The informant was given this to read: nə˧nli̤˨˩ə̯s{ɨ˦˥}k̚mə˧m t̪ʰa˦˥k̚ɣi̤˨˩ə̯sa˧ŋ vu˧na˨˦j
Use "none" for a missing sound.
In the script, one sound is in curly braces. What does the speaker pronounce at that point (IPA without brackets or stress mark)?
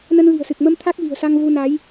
ɨ˨˩